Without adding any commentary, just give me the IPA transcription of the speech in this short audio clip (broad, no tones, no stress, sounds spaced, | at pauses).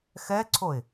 x ɛ ǀʰ o ɪ̯